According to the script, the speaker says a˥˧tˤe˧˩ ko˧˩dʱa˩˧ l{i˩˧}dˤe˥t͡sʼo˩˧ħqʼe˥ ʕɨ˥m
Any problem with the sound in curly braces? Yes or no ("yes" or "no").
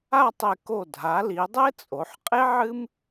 no